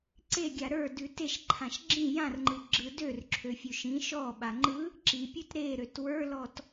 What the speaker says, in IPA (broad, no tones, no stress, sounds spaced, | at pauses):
ǀ e ɡʲ a ɾ ə˞ d ʉ t e ʃ ǃʰ ã ʃ ɡ͡ǁ ĩ j ã r ŋ͡ǃ ɯ ɡ͡ǁ ɯ d ø r ǁʰ ø fʲ ʉ ʃ ĩ ʃ ɔ ɓ a ŋ͡ǃ ɯ | ǁ i pʲ ʉ t ɾ e ɾ ø t w ə˞ l ɔ t